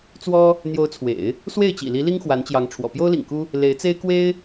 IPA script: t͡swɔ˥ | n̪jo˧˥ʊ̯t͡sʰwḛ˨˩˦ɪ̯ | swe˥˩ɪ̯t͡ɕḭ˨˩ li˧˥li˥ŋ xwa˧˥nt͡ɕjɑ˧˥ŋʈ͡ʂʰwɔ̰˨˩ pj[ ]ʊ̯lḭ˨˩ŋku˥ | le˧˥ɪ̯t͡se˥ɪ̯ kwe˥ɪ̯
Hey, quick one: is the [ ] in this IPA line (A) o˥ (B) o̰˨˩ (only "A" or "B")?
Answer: A